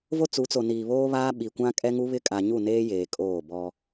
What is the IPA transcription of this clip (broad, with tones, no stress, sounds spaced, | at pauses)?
v o˦ t͡s u˨˦ t͡s o˨ n iː˨ β oː˦ β aː˦ ɓ i˨ kʷ ã˦ kʼ ɛ˦ ŋ u˦ β ɪ˦ kʼ a˨ ɲ u˦˨ n eː˦ j eː˨ kʼ oː˦˨ b ɔ˦